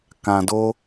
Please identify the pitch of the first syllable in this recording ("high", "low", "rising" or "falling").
low